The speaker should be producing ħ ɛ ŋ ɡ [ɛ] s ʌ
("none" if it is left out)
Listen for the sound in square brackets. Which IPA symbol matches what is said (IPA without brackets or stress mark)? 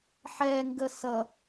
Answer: ə